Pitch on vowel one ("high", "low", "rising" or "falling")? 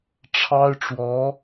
high